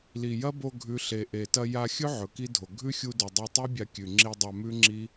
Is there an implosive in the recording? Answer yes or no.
no